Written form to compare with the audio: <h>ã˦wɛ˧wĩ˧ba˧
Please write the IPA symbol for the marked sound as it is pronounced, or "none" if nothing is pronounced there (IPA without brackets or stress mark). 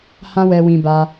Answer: h